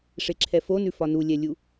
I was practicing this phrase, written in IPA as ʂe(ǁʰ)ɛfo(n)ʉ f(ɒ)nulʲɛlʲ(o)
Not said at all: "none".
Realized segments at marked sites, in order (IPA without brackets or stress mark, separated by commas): ǁʰ, n, ɒ, u